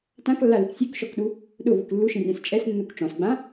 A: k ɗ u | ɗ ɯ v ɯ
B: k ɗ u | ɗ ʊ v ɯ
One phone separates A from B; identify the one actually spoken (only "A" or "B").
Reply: B